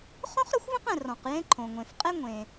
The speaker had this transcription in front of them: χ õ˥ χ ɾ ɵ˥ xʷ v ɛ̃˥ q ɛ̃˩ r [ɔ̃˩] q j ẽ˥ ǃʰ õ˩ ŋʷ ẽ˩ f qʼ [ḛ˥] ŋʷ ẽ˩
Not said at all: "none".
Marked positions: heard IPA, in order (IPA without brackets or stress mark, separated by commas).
ɔ̃˩, e˥